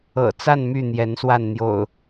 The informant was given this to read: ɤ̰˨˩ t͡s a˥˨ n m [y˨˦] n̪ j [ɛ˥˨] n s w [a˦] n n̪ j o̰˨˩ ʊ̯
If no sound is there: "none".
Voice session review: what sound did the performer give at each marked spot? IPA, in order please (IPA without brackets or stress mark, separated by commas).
y˥˨, ɛ˨˦, a˥˨